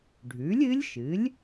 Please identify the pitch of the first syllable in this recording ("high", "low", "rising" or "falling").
rising